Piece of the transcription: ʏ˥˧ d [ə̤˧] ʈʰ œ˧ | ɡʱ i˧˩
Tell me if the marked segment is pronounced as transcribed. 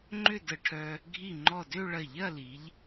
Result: no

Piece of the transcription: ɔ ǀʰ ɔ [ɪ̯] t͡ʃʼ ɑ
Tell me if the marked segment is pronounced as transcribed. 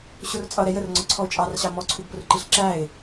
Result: no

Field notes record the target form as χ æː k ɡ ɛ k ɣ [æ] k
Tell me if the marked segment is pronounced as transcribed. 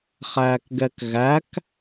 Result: yes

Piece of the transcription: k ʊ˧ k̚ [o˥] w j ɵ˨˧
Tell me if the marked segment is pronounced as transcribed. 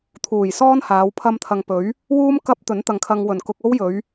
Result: yes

